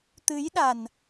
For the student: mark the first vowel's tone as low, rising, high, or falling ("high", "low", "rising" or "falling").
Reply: rising